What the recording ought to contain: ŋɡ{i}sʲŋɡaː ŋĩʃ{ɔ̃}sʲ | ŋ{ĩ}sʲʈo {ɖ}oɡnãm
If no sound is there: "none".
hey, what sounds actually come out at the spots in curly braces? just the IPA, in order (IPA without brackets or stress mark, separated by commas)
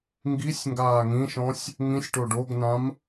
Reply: i, ɔ̃, ĩ, ɖ